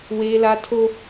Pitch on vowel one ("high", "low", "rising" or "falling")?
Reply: high